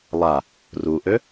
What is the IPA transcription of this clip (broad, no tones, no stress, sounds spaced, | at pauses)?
lˠ a | r u ʔ ø